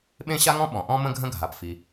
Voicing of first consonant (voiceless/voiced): voiced